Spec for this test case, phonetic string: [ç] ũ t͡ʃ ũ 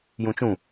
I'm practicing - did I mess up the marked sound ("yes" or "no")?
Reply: yes